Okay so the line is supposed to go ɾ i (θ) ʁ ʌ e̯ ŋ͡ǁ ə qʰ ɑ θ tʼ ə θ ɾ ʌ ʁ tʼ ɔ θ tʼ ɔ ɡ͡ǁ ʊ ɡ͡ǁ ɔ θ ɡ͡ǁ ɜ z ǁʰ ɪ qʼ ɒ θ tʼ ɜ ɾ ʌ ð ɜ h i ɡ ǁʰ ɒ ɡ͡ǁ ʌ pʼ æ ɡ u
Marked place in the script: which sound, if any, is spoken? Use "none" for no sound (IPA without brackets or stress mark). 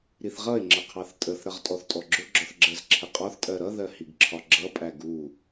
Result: θ